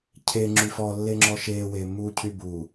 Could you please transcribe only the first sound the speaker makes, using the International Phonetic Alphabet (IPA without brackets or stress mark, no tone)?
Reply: cʰ